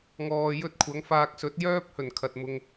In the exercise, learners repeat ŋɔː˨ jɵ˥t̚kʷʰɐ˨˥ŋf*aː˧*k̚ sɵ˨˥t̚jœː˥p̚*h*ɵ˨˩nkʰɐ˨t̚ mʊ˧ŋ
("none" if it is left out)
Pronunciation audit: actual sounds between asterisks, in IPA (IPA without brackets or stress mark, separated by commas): aː˧, h